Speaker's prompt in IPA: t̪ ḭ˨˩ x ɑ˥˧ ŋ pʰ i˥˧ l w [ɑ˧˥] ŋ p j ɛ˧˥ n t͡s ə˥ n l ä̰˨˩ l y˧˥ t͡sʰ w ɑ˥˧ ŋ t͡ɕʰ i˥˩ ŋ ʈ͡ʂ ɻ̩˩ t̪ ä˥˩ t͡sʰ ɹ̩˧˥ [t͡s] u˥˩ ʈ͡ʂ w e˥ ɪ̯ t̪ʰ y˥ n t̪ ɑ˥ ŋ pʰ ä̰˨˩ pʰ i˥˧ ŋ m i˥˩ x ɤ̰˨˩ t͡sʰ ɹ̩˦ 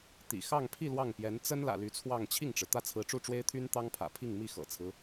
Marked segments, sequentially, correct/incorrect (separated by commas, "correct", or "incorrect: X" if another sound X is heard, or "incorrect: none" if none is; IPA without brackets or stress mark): incorrect: ɑ˥˩, incorrect: ʈ͡ʂ